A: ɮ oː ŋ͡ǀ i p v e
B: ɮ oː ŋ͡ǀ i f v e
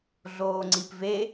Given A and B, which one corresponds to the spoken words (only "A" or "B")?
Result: A